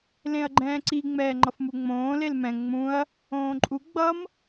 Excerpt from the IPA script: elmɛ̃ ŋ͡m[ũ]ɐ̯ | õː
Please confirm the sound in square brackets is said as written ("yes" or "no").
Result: yes